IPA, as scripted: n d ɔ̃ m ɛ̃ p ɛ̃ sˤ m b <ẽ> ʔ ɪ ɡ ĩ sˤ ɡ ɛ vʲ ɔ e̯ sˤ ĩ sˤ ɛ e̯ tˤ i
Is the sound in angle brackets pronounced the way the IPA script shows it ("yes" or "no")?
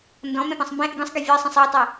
no